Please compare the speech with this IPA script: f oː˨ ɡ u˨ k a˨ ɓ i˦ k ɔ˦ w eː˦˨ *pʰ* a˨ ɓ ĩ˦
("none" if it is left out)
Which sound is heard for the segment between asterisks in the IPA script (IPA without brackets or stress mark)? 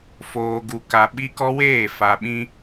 f